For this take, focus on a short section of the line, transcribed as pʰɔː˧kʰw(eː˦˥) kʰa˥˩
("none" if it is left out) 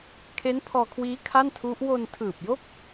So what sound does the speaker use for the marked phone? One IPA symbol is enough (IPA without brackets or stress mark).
iː˦˥